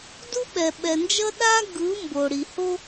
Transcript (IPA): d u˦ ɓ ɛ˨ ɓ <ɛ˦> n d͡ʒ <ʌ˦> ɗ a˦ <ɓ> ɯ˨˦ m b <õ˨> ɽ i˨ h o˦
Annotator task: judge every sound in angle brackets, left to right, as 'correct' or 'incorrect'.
incorrect: ɛ˨, correct, incorrect: ɡ, incorrect: o˨

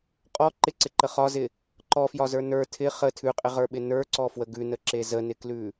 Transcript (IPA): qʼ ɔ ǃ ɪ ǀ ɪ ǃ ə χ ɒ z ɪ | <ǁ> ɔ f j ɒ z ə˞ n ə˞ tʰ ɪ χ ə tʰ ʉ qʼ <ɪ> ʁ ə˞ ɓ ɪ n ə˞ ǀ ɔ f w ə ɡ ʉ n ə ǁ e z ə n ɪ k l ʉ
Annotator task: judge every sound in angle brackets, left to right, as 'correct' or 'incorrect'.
incorrect: ǃ, correct

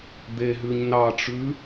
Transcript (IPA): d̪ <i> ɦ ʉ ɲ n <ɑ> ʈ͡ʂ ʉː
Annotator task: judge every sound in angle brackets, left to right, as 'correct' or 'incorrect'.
incorrect: e, correct

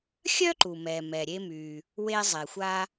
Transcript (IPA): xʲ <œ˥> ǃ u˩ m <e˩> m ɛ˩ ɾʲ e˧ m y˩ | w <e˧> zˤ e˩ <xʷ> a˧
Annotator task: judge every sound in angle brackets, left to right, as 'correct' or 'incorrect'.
correct, incorrect: ɛ˩, correct, correct

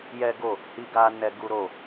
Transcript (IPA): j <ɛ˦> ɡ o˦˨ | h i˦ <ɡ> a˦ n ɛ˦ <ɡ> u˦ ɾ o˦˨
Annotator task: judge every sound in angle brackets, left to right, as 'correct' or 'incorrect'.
correct, correct, correct

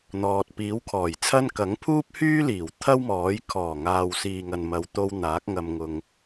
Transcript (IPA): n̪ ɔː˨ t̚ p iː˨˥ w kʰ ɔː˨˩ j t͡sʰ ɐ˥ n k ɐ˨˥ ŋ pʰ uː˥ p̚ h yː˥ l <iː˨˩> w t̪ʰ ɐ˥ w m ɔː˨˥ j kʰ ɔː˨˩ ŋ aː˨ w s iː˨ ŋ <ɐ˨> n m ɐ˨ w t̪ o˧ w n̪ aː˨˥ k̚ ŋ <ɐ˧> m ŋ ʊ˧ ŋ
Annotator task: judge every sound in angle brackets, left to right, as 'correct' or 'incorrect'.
correct, correct, correct

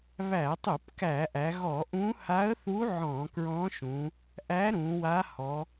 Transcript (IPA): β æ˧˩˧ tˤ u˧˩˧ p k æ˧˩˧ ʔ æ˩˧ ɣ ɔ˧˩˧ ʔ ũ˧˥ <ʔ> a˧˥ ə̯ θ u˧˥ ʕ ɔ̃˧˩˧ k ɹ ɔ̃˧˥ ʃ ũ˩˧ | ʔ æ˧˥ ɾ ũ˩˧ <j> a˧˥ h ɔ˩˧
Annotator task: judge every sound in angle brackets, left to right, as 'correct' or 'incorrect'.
incorrect: h, incorrect: w

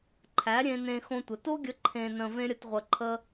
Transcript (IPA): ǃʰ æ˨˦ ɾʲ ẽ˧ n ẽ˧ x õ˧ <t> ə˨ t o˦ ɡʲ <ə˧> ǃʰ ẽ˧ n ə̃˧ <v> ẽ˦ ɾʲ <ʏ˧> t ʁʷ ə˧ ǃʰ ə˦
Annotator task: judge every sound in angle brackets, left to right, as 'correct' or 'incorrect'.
incorrect: tʷ, correct, correct, incorrect: ə˧

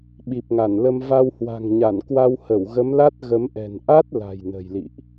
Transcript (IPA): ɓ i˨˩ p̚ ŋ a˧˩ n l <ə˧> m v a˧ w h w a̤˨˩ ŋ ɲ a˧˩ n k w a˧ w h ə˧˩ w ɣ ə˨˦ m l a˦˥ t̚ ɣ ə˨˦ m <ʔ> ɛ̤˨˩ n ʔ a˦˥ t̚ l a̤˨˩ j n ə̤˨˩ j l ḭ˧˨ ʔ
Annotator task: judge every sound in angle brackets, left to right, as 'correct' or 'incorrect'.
correct, correct

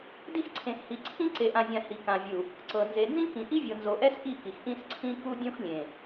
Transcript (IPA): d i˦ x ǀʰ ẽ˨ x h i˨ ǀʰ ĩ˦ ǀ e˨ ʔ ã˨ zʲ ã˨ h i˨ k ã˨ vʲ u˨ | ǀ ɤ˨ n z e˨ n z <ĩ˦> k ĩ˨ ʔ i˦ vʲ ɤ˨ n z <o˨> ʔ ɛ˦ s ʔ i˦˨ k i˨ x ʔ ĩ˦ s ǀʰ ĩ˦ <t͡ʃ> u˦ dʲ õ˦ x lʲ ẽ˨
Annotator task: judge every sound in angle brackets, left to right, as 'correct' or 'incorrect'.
correct, correct, incorrect: k

